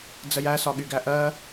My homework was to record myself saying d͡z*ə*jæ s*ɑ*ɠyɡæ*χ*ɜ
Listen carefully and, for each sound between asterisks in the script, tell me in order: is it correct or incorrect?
correct, incorrect: ɒ, incorrect: ʔ

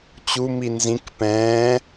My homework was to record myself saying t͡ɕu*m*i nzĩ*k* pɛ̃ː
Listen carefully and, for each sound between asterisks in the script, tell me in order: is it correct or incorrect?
correct, correct

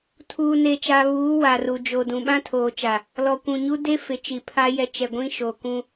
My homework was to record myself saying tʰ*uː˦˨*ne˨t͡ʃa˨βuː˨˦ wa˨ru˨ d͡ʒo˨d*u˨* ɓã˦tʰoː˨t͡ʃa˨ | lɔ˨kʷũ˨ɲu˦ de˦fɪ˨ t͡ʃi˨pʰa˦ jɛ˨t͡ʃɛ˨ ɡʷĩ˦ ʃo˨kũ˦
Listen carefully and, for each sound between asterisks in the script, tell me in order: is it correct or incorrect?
incorrect: uː˨, incorrect: ũ˨

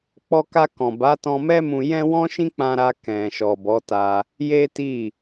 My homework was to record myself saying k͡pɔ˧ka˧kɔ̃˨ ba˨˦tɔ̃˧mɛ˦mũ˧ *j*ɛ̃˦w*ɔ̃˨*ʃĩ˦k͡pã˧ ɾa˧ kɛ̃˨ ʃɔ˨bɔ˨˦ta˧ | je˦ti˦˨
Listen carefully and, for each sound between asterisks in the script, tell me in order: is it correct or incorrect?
correct, incorrect: ɔ̃˦

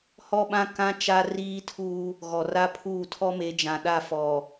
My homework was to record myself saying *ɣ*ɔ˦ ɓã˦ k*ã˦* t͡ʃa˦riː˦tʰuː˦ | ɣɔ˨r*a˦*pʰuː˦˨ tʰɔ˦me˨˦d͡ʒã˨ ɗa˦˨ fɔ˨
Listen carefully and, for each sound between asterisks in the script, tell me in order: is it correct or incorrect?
incorrect: h, correct, correct

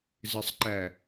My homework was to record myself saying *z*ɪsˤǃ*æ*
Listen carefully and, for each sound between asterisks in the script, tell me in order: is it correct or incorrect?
correct, correct

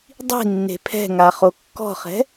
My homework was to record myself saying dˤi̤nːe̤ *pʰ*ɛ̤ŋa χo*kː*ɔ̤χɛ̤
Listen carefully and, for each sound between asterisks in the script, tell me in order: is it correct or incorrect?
correct, correct

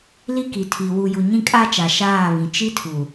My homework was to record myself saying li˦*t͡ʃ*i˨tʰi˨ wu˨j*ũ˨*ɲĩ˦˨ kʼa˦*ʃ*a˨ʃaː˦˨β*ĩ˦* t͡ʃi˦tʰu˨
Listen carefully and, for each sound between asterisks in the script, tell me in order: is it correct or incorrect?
incorrect: k, incorrect: u˨, incorrect: t͡ʃ, incorrect: ĩ˨

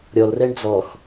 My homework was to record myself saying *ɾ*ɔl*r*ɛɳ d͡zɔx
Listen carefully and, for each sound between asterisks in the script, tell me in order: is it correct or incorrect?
incorrect: ɾʲ, correct

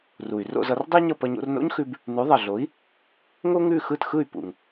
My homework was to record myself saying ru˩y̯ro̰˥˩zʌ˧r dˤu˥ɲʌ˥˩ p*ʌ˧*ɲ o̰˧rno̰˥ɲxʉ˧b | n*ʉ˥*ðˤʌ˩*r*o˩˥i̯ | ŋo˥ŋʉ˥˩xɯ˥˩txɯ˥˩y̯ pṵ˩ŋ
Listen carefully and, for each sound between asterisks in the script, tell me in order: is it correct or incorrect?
correct, incorrect: ʉ˩˥, incorrect: ɮ

